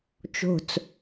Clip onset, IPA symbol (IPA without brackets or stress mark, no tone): t͡ʃ